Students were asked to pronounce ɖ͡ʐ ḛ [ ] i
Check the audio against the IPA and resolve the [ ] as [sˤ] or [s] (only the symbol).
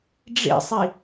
sˤ